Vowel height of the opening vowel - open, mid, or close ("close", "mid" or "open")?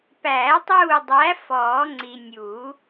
open